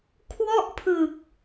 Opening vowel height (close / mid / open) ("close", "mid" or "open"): mid